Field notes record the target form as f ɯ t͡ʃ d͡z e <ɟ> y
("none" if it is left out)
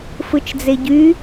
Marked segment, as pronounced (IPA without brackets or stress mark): ɟ